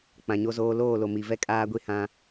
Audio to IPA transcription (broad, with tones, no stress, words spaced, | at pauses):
k͡pã˨ɲo˦zoː˦ loː˦˨lo˨ mi˨vɛ˦kʼaː˦ɡʷi˦ hã˦